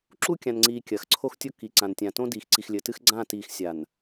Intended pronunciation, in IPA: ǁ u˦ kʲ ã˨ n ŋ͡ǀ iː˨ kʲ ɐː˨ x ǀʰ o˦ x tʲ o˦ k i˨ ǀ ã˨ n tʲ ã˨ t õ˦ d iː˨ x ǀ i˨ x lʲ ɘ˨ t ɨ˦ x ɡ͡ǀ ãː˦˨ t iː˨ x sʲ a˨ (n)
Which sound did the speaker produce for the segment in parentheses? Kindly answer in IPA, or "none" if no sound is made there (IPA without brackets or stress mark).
n